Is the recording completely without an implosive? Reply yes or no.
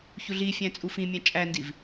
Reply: yes